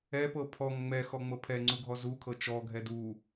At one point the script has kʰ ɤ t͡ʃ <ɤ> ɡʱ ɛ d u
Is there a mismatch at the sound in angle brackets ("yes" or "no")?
yes